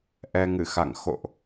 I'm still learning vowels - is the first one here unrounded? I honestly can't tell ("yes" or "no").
yes